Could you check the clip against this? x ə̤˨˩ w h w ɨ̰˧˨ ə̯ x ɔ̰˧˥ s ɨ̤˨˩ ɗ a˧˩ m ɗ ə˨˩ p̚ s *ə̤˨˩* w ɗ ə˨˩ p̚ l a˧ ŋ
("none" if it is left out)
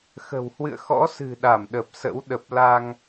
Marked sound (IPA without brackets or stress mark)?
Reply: ə̰˧˥